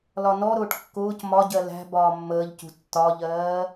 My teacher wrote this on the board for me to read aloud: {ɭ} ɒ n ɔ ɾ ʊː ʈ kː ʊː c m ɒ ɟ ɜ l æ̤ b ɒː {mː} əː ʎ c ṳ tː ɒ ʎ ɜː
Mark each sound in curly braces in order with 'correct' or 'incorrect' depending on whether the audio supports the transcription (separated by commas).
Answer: incorrect, correct